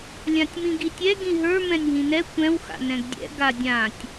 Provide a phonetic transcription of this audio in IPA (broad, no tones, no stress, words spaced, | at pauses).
lʲãtʲmĩɡitʲɛ ɡĩɦə˞ mɛ̃nʲɦĩnɛ kʷɛ̃w xa̰nɛ̃ɡdʲɛ̰ ɡadʲãtʲ